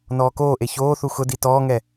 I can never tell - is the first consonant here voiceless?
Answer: no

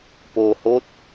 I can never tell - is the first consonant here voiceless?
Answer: yes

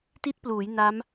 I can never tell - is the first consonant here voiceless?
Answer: yes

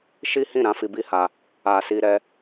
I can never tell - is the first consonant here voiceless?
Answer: yes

